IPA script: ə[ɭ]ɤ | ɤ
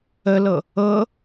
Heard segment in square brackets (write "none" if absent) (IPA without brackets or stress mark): l